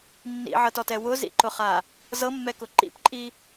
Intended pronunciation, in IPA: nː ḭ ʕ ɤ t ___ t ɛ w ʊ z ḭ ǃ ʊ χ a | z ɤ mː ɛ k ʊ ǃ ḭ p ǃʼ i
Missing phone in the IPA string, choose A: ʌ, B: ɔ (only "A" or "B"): B